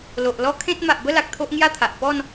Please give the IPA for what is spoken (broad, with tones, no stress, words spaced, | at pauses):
lo˨ʔ lɔ˦kʰẽ˦t̚ ma˨ʔbə˥˧la˨k̚ t̪ʰo˦ʔŋja˥˧t̪ʰa˨ʔ pɔ˥˧n